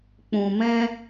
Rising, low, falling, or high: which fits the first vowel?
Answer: low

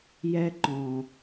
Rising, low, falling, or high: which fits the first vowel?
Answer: high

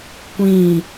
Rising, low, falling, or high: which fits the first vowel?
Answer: falling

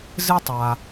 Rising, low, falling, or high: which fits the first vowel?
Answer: high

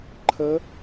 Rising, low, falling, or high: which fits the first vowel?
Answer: rising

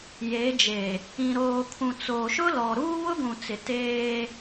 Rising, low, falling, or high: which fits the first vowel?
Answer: rising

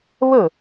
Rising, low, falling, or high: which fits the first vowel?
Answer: falling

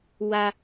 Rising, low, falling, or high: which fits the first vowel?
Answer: high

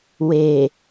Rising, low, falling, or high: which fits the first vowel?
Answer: low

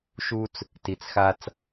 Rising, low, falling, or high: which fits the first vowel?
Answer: high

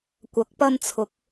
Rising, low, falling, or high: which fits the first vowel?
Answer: rising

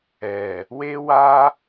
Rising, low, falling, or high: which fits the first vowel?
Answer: low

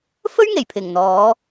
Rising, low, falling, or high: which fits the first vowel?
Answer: high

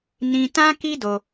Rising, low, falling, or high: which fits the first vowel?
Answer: high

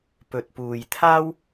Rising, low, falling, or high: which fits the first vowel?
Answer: low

